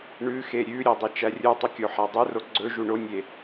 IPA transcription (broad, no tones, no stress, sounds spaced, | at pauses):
ɳ ʉ x e ɾʲ ʉ ɾʲ œ dˤ e t͡ʃ æ rʲ u tˤ ɵ kʲ o ħ æ dˤ u r o ɡ͡ǀ ɵ ʒ u ɳ o nʲ e